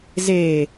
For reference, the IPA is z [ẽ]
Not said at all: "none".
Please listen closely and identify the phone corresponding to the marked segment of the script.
e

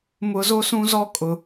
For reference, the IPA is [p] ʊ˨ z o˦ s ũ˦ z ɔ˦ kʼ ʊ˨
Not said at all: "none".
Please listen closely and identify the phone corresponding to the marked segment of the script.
m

